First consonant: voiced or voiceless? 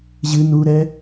voiced